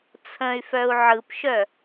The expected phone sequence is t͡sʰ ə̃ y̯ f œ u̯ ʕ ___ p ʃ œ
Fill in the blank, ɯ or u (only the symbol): ɯ